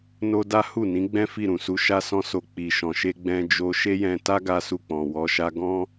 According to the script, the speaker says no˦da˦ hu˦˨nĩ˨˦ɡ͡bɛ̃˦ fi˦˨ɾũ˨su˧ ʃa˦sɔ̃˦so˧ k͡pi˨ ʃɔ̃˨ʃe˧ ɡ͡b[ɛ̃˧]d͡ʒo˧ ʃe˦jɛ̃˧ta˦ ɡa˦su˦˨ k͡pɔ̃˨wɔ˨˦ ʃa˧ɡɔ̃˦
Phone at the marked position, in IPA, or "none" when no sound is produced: ɛ̃˧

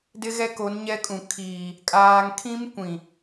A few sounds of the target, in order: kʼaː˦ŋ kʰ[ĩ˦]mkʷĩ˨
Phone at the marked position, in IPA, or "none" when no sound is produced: ĩ˦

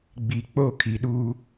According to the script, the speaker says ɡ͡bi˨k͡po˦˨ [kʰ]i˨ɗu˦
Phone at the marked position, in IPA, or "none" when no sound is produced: kʰ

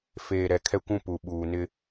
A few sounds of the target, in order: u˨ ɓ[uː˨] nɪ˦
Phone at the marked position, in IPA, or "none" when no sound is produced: uː˨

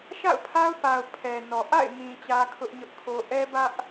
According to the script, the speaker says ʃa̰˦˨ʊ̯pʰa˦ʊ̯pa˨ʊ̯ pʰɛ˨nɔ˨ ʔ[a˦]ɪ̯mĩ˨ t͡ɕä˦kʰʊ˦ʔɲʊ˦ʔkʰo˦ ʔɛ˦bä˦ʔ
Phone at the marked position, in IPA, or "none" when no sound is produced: a̰˦˨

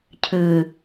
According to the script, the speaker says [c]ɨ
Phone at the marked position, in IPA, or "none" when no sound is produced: cʰ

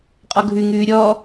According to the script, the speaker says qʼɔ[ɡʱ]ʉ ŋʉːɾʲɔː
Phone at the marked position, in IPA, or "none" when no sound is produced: ɡʱ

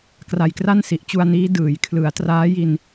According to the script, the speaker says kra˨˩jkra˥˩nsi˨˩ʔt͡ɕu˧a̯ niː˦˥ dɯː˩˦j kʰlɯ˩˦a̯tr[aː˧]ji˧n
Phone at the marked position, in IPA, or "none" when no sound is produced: aː˦˥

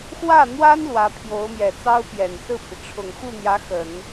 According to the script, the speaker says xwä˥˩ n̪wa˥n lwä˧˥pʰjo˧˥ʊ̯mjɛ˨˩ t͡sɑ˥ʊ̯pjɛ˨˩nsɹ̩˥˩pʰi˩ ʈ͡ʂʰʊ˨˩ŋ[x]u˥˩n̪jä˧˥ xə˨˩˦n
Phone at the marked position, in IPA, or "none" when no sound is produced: x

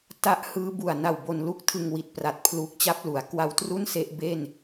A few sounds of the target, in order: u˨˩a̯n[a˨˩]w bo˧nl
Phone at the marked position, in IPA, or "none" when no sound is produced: a˨˩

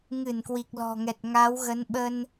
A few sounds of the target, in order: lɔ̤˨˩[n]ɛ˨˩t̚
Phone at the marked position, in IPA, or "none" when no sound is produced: ŋ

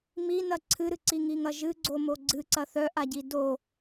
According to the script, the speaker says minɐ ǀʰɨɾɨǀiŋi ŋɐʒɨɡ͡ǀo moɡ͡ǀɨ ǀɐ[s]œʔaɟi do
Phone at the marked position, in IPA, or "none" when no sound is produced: θ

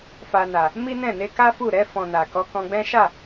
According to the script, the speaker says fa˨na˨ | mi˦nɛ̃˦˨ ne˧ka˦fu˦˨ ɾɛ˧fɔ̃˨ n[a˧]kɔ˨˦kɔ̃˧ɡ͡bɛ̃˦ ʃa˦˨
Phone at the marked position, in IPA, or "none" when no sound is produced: a˨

